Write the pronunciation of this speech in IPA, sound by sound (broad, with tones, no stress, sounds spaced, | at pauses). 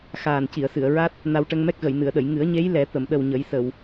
x aː˨˩ n c i˨˩˨ ə̯ s ɨ˨˩˨ ə̯ ɹ a˦˥ t̚ | n a˧ w ʈ ə˧ ŋ m ɛ˦˥ k̚ ɣ ə˨˩˨ j n ɨ˨˩˨ ə̯ ɗ ə˨˩˨ j ŋ ɨ˨˩˦ ə̯ ɲ e˧˥ j l ɛ˨˩˦ t̪ ə˨˩˨ m ɗ ə˨˩ w ɲ ə˨˩˦ j s ə˨˩˨ w